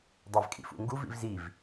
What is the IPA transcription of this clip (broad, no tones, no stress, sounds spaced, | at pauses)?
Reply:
dˤ æ v kʼ ḭ f ṵ ŋ ɡ u v ḭ v z i v